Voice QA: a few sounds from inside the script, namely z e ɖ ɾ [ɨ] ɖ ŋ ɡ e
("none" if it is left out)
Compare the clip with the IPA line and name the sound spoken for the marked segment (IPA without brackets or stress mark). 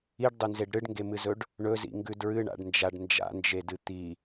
ɨ